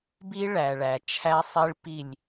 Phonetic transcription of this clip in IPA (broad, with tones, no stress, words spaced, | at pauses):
bi˦ɭæ˨ɭæ˨ t͡ʃʰæ˦sˤi˦ɭpi˦˨lʲ